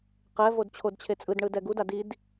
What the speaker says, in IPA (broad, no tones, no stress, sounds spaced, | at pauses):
q ɛ v o d t͡ɕʰ o d t͡ɕʰ e t͡sʼ ɯ d ɳ ɯ d ɛ ɡ u d a d i d